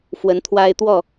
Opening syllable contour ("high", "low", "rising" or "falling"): rising